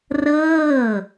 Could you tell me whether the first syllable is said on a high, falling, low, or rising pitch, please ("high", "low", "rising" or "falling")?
falling